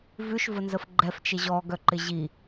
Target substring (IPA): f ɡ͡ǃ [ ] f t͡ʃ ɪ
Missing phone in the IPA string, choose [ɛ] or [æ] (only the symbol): ɛ